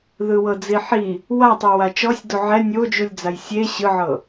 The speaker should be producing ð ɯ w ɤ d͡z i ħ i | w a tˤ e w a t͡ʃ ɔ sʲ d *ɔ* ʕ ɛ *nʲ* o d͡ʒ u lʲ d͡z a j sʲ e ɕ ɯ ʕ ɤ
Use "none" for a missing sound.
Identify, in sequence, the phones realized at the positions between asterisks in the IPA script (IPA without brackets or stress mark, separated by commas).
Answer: o, nʲ